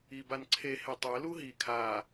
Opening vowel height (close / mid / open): close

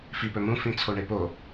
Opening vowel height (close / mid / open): close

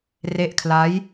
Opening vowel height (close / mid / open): mid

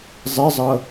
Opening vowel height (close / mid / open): mid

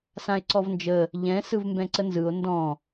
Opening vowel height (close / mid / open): open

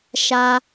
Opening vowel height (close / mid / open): open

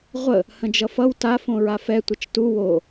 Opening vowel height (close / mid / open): mid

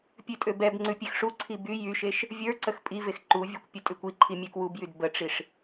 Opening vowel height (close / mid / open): close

